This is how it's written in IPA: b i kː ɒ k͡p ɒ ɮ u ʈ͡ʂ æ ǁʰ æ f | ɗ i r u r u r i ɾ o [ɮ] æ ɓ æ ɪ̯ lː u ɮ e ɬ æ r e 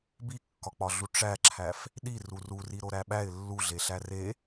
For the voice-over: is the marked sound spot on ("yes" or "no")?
no